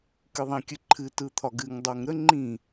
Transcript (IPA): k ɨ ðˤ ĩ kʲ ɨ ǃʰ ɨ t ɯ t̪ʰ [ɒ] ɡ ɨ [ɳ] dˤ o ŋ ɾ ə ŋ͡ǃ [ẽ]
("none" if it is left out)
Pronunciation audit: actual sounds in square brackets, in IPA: ɒ, ŋ, ĩ

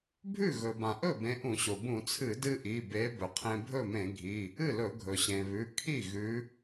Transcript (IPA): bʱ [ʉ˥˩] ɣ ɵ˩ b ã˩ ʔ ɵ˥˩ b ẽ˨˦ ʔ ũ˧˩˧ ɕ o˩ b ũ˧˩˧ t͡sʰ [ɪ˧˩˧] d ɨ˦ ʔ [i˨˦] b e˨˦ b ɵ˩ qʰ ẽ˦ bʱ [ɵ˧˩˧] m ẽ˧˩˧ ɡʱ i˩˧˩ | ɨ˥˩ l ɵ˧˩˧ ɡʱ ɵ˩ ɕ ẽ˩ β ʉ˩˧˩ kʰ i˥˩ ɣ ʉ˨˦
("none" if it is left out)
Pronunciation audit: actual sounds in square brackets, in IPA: ʉ˥˩, ɨ˧˩˧, i˩˧˩, ɵ˥˩

